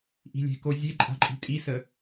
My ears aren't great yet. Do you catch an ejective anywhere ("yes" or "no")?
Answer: yes